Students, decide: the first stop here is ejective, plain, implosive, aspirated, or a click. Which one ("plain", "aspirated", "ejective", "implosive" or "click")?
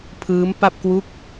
aspirated